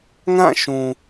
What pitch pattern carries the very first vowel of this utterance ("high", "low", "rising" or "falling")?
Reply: falling